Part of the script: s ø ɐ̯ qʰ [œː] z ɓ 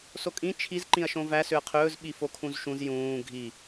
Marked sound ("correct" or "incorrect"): incorrect